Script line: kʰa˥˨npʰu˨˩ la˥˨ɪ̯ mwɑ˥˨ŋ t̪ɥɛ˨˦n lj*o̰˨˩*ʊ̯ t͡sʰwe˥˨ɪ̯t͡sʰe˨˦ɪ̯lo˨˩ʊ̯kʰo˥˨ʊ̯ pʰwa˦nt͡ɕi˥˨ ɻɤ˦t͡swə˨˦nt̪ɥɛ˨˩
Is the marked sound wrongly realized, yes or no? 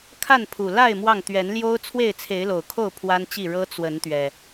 yes